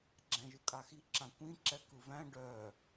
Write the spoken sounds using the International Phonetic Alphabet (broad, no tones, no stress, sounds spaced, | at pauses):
ɡ͡ǁ æ̃ ʒ ɯ kʼ a x i ǁ ã kʷ ĩ ǁ ɛ k ɯ v æ̃ ɖ œ